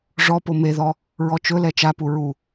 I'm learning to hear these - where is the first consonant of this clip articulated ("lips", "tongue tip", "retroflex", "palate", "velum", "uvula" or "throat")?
retroflex